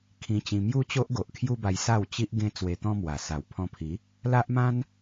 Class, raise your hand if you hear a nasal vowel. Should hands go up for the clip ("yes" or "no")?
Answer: yes